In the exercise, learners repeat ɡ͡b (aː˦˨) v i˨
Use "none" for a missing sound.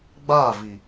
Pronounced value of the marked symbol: aː˦˨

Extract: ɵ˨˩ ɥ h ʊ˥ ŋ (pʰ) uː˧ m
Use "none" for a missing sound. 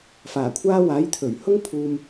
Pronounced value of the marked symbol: pʰ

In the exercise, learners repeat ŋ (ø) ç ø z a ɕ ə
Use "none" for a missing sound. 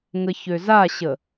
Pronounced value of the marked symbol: ə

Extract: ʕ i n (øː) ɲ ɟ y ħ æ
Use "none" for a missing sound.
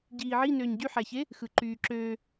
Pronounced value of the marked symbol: øː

